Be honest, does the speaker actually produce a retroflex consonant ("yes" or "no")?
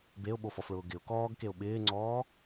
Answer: yes